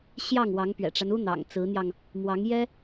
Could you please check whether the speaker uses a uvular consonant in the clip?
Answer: no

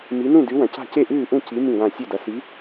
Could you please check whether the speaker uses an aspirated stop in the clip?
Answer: no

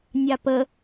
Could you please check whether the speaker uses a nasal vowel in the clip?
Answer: no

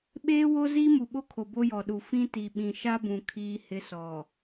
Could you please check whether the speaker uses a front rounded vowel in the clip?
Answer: no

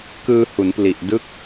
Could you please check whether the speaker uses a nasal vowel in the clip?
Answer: no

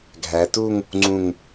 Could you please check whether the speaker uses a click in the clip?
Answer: yes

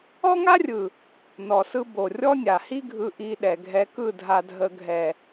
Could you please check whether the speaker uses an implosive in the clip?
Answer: yes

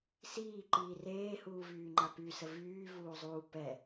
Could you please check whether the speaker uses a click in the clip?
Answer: yes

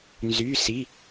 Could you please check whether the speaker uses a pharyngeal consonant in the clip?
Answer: no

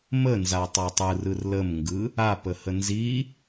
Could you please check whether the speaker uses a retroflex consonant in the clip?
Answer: no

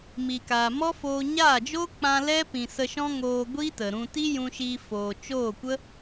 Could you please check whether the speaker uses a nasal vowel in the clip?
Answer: yes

